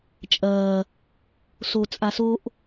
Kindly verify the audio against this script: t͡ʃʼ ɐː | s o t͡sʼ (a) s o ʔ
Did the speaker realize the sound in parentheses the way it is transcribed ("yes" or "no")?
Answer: yes